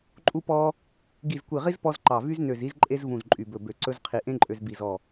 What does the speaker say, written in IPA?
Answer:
ǃʼu˥pɔ˥ | ɡi˧˩zkʷi˧˩ʁi˥z pɔ˥zǃɑ˧˩ vy˥znø˧˩z i˥z ǃʼe˥z vũ˧˩zǃʼy˧˩bɵ˧˩bø˧˩ ǀɵ˥zqʰi˧ ʔẽ˥ǃʼø˧z bi˧˩zɔ˧˩

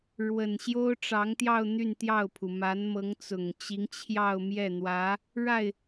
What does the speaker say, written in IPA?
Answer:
ɻwə˨˩nɕjo˥ʊ̯ʈ͡ʂɑ˧˥ŋt̪jɑ˥˧ʊ̯ n̪y˥˧nt̪jɑ˥˩ʊ̯pʰu˩ ma˧˥nmɤ˧˥ŋt͡sʊ˨˩ŋt͡ɕi˧˥ŋ t͡ɕʰjɑ˥˧ʊ̯mjɛ˥˩n̪wä˧˥ | ɻa˥˩ɪ̯

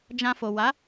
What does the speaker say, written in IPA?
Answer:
d͡ʒã˧fo˨ wa˨˦

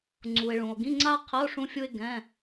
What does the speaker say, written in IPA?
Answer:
ŋ͡ǀu˩e̯ɭũ˩o̯ɡĩ˧˥˧ ŋ͡ǀa˥qʰə˧˥˧o̯ ʂũ˥fʲu˥e̯ ɡɛ̃˧˥˧

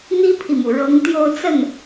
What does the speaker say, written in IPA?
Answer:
n̪i˥pʰi˨mu˩ ɻɤ˧˥ŋt̪jo˥˧ʊ̯t͡sə˥˩n

